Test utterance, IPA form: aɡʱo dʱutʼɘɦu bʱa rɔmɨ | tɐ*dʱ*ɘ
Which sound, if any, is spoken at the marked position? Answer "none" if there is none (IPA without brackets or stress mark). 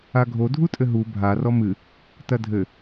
dʱ